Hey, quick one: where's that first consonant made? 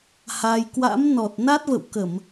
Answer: throat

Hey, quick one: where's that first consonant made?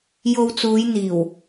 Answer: palate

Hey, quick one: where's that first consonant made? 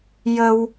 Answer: palate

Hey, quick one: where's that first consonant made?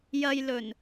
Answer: palate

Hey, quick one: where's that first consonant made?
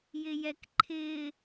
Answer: palate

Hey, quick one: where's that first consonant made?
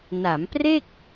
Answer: tongue tip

